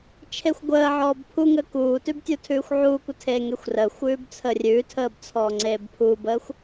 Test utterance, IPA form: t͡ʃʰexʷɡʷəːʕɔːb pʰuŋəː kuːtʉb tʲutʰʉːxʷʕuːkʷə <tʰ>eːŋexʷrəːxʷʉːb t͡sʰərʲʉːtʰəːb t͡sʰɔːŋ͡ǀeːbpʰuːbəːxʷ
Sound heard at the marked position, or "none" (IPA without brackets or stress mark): tʰ